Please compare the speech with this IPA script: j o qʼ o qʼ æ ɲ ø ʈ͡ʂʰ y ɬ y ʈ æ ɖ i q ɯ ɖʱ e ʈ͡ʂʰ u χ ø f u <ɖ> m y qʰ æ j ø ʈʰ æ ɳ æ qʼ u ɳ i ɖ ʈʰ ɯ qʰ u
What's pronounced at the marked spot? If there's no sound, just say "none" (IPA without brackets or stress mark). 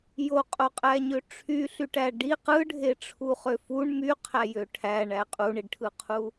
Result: ɳ